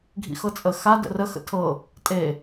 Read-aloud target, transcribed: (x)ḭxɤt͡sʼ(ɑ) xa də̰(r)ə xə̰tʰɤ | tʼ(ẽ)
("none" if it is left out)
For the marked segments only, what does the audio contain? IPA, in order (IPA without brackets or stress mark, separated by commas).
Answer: ɡʱ, ə, r, e